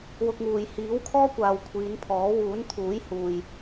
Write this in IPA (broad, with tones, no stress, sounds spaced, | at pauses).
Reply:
w ʊ˧ k̚ ŋ uː˨ j h iː˨˥ w kʰ ɔː˥ kʷ aː˨ w kʷʰ iː˨˧ n pʰ ɔː˨˥ w uː˨˥ n t̪ʰ uː˨˥ j h uː˨ j